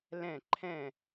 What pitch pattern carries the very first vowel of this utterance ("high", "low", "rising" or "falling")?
falling